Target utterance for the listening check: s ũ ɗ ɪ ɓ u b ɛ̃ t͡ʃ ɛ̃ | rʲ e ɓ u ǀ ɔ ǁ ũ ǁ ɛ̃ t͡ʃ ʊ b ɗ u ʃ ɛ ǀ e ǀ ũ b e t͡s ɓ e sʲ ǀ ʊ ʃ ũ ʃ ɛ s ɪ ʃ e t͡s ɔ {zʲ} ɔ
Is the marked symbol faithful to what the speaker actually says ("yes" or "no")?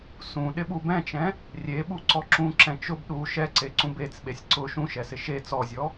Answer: yes